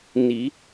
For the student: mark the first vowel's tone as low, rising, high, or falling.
rising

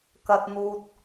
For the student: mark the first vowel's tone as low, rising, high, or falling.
low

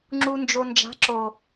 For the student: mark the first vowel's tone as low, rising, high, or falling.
low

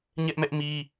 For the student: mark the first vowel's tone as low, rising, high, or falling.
high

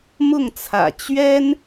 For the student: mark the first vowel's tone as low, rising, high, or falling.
falling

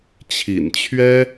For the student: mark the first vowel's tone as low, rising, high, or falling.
low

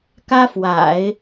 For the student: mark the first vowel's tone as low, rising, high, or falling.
high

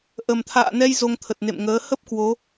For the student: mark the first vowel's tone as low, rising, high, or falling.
low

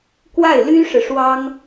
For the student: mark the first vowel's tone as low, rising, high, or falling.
falling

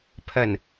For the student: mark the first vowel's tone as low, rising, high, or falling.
low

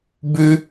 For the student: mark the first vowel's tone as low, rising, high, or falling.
high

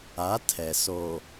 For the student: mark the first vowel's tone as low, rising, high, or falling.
rising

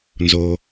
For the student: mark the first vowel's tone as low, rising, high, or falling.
low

